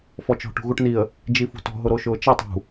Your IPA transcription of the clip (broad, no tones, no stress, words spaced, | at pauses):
fɔt͡ʃɔ̤ ʈṳɣuʈniə̯ | d͡ʒifṳtɔ̤ ɦʊɾoʃʊːt͡ʃɛtˤ ṳ